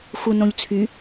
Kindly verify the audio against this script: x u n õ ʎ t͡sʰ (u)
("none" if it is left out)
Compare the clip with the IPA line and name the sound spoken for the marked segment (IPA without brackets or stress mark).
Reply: y